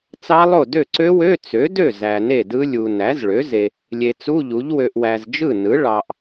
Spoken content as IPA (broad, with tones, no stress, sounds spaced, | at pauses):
t͡s ɑ˦˥ lˠ o˥˩ d ø˥˩ ǀ ø˦˥ w ø˧˥˧ t͡s ø˩˥ d ø˥˩ z æ˨ n e˥˩ d ɯ˦˥ lʲ u˨ n æ˩˥ z ɭ ø˩˥ z e˨ | lʲ e˨ t͡s u˧˥˧ ʎ u˩˥ ʎ w ø˨ ʔ w æ˨ z d͡ʒ ɯ˥˩ n ɯ˩˥ ɭ ɑ˨ ʔ